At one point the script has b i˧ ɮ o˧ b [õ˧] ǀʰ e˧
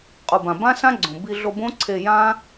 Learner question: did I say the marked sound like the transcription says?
no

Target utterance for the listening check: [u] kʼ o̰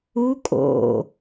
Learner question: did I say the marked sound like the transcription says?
yes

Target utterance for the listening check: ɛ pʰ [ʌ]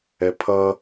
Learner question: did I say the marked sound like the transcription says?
yes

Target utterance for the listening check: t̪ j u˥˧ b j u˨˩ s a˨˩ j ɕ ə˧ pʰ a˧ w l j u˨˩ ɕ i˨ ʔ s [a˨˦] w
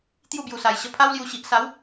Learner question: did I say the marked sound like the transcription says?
yes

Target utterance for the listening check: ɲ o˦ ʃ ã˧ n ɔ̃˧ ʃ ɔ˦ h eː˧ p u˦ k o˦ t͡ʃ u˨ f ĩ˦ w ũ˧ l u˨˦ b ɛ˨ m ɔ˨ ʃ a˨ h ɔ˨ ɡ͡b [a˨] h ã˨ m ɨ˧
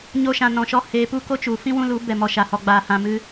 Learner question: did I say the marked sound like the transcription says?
no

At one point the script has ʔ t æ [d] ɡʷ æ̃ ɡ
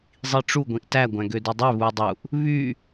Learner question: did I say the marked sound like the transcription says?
no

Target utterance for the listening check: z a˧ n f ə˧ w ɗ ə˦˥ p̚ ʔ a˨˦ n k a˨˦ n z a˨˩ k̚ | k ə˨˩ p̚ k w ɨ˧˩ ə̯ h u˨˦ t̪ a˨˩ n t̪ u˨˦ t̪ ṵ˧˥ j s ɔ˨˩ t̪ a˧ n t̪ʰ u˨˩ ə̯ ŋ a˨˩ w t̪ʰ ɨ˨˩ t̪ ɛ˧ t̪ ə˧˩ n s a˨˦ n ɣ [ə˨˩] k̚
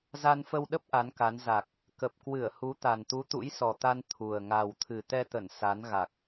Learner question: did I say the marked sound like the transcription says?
no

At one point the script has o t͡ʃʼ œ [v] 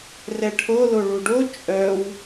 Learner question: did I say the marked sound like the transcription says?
no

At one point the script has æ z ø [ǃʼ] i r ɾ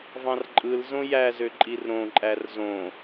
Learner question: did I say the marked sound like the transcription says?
yes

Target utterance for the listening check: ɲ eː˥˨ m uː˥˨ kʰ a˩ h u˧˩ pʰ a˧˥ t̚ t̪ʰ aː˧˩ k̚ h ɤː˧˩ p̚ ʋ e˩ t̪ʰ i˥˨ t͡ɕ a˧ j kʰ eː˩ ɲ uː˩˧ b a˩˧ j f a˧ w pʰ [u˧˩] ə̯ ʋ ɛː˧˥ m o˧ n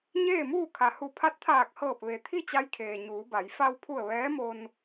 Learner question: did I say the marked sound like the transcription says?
yes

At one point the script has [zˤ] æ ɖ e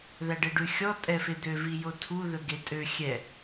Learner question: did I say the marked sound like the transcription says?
no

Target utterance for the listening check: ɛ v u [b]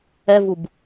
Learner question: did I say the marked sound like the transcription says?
yes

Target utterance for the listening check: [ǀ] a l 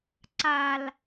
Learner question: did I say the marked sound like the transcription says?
yes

